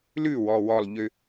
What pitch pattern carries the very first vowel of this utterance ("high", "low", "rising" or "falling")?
falling